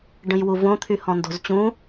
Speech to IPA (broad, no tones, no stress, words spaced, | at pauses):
ɖə̃jwuvõ t̪ʰyhɔ̃ndo̤zt͡ɕũ